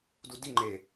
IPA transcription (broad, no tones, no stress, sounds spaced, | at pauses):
d u d i ŋ͡ǃ e